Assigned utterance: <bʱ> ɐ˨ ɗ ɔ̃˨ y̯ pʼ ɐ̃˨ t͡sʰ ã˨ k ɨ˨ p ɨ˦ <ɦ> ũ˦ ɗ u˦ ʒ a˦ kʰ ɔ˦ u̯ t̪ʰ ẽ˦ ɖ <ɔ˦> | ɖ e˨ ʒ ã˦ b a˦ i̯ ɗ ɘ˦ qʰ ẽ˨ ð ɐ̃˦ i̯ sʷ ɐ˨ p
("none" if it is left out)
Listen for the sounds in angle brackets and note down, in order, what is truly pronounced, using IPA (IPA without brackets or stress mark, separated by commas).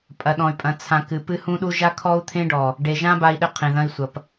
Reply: pʼ, h, ɔ˨